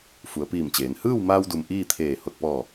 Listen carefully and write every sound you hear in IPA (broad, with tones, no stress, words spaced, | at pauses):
fu˩˧ə̯piː˧˩mt͡ɕeː˩˧n hɯː˥˨wmaː˧wdu˩m ʔiː˥˨t̪ʰeː˧˩ ho˧˩t̚pɔː˧˩